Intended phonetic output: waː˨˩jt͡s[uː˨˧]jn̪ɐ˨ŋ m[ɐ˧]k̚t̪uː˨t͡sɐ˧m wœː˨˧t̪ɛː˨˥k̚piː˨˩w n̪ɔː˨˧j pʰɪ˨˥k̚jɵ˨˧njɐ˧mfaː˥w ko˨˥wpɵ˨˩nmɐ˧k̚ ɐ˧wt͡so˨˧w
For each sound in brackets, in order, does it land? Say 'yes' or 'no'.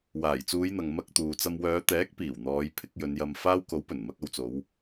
yes, yes

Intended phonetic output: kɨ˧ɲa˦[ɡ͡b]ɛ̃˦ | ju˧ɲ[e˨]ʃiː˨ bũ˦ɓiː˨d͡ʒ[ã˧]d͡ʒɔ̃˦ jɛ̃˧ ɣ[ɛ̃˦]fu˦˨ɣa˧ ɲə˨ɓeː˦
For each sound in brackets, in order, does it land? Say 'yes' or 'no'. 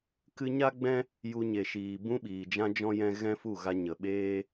yes, yes, no, yes

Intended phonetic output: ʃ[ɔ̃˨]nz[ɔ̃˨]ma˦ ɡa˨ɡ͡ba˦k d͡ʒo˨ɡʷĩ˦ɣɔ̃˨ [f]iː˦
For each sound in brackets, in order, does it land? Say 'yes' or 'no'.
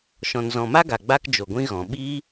yes, yes, no

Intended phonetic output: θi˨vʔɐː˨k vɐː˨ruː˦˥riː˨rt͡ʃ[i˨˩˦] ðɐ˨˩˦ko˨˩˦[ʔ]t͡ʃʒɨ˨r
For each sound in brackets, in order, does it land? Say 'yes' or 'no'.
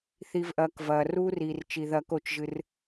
no, no

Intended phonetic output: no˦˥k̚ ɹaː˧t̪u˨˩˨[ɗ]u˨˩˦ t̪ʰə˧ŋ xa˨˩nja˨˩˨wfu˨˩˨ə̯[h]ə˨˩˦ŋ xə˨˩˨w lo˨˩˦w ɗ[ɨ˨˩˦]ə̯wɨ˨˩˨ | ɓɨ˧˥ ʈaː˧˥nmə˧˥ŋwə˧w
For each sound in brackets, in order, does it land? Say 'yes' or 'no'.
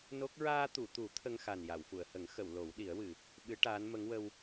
no, yes, no

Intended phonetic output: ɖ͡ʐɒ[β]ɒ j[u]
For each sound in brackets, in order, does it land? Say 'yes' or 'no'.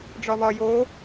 yes, no

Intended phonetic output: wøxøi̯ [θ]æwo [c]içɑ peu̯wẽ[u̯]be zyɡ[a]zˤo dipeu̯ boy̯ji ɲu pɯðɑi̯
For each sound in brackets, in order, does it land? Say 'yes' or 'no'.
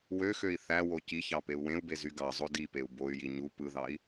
yes, yes, yes, no

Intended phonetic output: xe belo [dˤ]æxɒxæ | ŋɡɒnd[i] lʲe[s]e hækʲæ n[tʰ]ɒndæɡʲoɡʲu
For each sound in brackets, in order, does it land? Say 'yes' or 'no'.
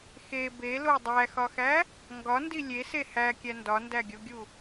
yes, yes, yes, no

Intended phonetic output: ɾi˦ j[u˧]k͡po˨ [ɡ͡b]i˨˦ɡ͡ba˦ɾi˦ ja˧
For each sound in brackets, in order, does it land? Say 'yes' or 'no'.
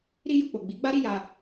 yes, yes

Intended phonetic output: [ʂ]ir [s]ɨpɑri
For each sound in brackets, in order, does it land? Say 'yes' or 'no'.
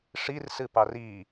yes, yes

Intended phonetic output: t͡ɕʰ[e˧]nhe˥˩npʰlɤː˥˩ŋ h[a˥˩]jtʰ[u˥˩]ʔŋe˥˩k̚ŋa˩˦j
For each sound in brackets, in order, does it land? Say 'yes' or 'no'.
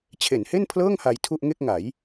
no, no, yes

